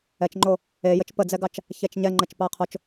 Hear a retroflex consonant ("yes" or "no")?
no